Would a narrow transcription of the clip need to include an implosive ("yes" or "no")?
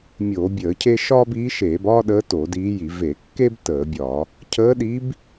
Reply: yes